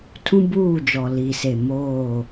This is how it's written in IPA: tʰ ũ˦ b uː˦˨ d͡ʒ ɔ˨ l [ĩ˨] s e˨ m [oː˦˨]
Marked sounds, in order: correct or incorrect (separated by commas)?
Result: incorrect, correct